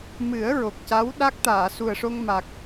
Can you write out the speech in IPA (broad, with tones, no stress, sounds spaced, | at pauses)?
m ɨ˨˩˦ ə̯ ɹ o˨˩ k̚ c a˧˥ w ɗ a˦˥ k̚ t̪ aː˨˩˨ s u˨˩ ə̯ ʂ o˧ ŋ m a˨˩ k̚